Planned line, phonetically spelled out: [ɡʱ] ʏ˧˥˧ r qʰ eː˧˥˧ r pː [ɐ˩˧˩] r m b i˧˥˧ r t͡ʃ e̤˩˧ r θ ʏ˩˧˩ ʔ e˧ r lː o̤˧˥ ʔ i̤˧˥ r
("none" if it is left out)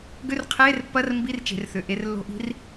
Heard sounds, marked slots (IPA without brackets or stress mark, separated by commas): ɡ, ɐ˧˥˧